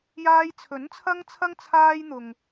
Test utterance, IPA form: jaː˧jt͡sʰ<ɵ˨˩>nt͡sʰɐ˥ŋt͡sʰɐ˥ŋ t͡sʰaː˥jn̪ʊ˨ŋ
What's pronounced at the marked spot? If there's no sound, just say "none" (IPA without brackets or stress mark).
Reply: ɵ˨˥